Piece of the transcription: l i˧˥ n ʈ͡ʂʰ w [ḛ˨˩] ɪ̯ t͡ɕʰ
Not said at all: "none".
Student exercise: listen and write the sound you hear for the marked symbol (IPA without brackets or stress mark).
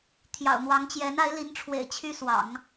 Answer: ḛ˨˩